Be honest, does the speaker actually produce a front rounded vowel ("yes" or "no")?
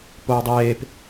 no